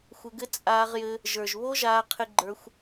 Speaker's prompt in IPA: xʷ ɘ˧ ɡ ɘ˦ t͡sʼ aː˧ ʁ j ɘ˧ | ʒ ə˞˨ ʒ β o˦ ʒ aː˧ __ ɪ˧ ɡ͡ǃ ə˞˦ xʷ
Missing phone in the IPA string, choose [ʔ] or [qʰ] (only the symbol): qʰ